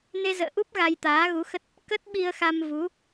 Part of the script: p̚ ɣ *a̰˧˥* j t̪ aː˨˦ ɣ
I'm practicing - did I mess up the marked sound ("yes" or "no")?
yes